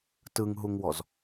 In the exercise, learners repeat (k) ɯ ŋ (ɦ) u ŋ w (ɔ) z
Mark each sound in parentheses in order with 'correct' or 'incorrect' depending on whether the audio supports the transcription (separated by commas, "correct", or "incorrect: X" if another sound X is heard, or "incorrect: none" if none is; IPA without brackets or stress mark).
incorrect: t, correct, correct